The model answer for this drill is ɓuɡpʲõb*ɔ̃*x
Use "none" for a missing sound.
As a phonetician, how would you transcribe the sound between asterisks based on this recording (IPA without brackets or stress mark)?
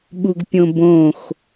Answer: õ